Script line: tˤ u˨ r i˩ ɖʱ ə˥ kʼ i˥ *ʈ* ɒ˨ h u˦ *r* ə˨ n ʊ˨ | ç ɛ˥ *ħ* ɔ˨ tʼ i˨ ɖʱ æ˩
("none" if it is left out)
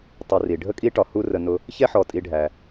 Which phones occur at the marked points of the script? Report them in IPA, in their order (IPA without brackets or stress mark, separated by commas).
ʈ, r, ħ